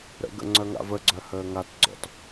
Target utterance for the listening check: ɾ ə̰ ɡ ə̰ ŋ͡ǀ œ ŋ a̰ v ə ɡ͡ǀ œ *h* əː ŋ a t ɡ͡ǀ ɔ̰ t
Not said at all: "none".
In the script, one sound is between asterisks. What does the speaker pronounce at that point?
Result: h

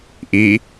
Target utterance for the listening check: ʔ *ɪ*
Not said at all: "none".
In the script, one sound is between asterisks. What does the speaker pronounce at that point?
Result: i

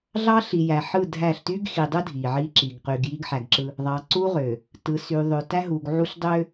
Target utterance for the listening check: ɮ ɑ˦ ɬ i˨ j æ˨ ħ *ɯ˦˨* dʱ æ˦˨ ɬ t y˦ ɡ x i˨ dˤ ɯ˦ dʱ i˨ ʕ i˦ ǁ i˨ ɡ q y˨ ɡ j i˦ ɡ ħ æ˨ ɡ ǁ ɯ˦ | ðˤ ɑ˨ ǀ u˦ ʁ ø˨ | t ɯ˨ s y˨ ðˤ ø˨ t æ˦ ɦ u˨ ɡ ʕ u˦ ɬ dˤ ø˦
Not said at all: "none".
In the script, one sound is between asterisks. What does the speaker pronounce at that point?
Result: ɯ˦˨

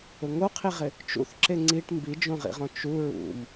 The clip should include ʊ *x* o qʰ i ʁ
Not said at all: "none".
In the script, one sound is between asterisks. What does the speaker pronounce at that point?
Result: ŋ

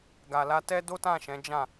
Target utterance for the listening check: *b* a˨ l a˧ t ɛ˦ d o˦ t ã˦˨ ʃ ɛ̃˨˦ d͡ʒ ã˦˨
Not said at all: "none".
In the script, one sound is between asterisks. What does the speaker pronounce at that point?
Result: ɡ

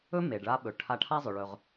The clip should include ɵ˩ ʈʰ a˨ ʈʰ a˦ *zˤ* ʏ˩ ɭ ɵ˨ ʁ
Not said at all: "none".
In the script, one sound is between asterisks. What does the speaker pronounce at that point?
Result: zˤ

